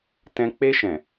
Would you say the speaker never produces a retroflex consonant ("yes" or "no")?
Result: yes